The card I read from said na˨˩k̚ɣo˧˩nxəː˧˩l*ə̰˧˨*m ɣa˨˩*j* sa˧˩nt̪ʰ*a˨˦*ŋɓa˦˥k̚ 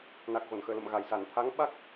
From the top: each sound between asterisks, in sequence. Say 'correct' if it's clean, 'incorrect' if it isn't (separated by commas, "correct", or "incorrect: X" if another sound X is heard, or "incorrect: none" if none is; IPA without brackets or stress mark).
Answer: correct, correct, correct